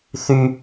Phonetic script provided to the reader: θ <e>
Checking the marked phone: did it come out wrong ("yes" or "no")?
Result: yes